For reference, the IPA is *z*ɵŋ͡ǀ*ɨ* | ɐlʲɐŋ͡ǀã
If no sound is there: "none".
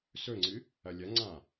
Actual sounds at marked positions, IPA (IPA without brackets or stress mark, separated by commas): s, ɨ